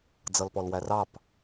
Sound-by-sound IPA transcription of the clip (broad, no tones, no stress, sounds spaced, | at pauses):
d͡z ʌ l p ɔ l w æ r ɑ p